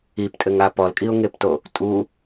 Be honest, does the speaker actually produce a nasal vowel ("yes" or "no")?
no